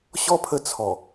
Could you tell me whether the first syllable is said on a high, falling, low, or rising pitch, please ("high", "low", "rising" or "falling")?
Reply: high